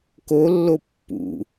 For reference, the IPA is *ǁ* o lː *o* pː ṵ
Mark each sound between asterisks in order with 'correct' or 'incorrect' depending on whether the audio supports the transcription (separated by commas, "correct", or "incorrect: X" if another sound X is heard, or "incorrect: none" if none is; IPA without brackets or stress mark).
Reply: incorrect: k, correct